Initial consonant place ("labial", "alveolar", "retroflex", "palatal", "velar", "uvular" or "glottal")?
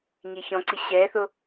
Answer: palatal